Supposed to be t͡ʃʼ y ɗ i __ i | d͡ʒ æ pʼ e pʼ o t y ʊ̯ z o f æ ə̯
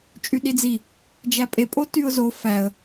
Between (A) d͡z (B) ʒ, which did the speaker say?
A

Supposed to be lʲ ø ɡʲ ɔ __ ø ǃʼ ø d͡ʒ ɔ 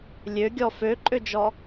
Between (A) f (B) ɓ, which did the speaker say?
A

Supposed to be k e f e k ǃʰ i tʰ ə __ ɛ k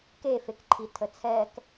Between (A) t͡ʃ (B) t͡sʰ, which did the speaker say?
B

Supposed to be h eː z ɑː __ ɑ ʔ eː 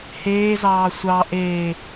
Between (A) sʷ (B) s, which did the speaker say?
A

